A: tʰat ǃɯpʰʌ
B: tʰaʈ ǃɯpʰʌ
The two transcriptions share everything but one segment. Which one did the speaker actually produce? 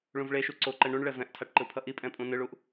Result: B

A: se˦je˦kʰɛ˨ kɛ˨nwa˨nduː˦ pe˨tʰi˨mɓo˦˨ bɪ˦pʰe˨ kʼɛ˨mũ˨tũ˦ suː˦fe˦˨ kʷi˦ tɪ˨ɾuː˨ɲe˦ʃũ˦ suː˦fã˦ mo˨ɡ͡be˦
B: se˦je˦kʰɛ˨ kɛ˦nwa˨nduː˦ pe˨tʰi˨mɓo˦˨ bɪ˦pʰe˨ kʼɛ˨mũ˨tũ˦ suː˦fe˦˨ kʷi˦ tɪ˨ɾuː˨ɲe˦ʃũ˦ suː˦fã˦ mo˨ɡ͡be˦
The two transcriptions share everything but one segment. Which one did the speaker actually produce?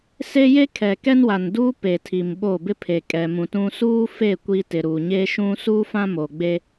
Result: B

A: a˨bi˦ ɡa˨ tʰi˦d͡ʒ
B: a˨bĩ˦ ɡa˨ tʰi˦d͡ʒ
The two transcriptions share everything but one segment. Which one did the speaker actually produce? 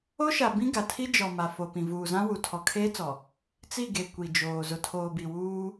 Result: B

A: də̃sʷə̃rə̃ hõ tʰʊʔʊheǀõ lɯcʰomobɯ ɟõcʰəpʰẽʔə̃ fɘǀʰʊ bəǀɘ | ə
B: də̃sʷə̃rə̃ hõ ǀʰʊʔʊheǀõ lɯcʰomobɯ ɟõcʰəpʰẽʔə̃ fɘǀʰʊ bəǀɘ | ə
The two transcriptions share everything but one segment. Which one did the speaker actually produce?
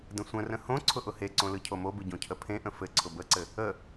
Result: B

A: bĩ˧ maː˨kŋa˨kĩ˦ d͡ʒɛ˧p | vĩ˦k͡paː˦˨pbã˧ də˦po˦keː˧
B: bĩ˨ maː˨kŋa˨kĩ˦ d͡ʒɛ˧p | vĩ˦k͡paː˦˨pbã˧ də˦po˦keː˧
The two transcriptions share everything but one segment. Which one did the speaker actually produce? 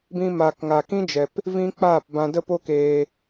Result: A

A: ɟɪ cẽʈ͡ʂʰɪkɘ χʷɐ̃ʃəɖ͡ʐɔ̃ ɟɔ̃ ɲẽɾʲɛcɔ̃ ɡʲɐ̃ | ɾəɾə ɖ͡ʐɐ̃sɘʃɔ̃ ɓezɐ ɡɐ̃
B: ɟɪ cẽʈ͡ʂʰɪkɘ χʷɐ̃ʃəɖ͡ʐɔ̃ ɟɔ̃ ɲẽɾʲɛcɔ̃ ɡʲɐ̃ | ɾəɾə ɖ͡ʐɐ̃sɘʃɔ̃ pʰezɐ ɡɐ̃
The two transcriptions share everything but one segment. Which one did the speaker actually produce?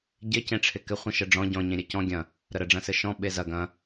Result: A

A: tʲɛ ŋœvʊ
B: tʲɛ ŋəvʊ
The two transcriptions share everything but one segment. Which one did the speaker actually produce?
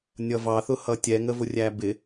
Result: B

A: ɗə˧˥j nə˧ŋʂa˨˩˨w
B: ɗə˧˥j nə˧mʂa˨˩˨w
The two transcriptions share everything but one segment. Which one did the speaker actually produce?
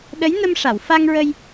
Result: B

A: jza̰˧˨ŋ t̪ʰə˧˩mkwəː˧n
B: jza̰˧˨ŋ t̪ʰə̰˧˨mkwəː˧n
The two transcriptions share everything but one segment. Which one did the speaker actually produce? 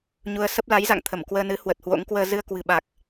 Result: A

